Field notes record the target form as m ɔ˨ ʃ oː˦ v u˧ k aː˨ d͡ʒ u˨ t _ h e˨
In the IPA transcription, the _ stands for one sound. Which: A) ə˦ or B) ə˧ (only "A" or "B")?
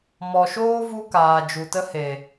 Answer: B